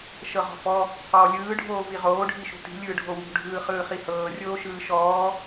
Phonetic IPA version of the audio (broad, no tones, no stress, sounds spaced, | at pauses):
ʃ ɤ ʁ ɔ̤ f ɔ | q ɔː lʲ ɯː ɖʱ oː v i ʁ oː ɖʱ i ʃ ṳ t i̤ lʲ ɯː ɖʱ o w ṳ ɖʱ ɯː χ ɯː χ i h ɤː rʲ oː ʃ ɯː ʃ ɔː